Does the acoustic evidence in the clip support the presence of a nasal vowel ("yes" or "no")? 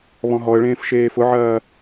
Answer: yes